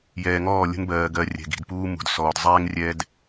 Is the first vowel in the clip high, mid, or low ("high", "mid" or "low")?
mid